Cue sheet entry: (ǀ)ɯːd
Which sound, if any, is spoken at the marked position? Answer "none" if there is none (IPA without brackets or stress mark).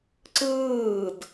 ǀ